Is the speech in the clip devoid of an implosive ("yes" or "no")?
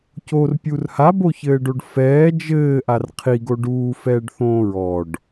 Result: yes